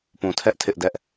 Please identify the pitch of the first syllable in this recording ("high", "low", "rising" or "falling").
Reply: low